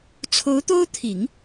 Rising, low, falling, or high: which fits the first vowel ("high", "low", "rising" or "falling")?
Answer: rising